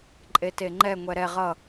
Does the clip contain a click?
yes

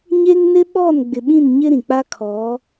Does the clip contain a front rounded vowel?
no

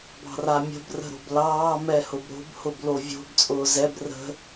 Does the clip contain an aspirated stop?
no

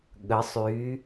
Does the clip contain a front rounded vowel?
yes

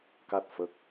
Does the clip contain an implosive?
no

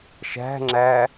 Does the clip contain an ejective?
no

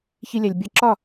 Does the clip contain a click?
yes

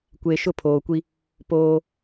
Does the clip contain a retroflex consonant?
no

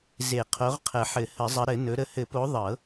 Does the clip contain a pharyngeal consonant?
yes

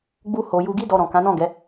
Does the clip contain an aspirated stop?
no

